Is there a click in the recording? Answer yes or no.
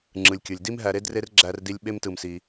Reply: yes